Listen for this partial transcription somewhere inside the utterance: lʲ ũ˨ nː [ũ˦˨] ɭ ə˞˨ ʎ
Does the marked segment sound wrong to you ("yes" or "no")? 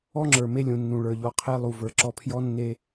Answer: yes